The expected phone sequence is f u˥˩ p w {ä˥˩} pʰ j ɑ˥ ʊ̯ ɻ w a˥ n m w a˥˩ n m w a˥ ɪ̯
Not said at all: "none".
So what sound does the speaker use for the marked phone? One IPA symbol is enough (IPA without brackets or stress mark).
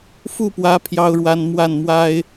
ä˧˥